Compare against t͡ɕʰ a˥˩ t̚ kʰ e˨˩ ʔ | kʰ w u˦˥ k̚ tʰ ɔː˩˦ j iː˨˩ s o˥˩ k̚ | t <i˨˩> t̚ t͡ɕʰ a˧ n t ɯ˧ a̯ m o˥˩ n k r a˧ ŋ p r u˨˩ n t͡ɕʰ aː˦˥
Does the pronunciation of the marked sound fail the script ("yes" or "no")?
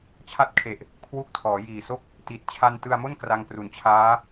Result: no